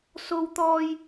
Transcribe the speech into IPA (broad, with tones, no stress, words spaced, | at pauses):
so˥wt̪ɔː˥j